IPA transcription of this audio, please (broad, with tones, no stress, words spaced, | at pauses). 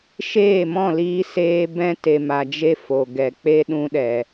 ʃeː˦˨mɔ̃˦˨liː˧seː˧ bɛ̃˧te˨ma˨d͡ʒe˧ fo˨ɡɛ˨k͡pe˦ ɗũ˧ɗɛ˨